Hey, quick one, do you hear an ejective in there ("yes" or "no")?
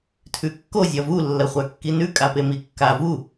yes